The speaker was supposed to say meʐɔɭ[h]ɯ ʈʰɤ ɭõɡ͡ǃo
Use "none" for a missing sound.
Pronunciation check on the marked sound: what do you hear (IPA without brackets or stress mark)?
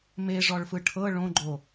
f